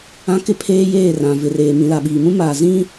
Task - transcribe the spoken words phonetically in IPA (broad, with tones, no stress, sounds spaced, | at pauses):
ã˦ k ɪ˦ pʰ eː˦ j eː˦˨ r ã˨ v ɪ˨ r eː˨ m ĩ˨ l a˨ ɓ iː˨ m ũ˦ m aː˨ z ĩ˦